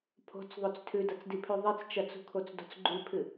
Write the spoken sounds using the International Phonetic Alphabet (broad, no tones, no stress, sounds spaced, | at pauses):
pʰ o̤ t͡s ðˤ o t͡s tʰ ʉ d ɐ t͡s d i pʰ ʉ ðˤ i t͡s t͡ʃ ɐ t͡s ṳ kʰ o t͡s d o̤ t͡s ɡ͡ǃ ʉ pʰ ɨ